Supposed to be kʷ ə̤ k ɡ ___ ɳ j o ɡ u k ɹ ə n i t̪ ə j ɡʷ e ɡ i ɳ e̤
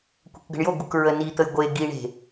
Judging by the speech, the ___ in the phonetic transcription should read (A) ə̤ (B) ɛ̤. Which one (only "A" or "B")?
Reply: A